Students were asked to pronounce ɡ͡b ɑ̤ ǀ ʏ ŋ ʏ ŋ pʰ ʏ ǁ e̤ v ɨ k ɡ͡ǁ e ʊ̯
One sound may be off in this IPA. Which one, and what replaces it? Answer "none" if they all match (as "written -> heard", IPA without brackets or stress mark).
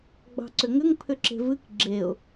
none